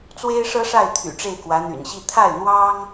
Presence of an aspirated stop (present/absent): present